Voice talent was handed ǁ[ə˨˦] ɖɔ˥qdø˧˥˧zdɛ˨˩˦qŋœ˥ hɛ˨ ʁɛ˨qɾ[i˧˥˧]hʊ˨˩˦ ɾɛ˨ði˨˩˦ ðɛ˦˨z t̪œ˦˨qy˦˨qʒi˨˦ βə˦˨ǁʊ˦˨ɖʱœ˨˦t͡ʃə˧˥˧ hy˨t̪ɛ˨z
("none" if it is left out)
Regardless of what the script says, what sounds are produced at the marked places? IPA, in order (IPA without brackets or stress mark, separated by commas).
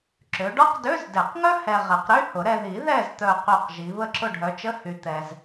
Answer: ø˨˦, y˧˥˧